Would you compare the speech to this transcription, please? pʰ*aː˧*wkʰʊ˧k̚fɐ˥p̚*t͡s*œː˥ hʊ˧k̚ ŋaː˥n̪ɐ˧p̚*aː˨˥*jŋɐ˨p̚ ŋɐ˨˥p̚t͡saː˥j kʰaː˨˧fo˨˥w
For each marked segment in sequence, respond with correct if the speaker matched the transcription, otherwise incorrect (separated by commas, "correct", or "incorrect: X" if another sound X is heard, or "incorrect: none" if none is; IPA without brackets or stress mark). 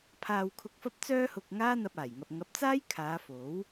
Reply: correct, correct, incorrect: aː˨˩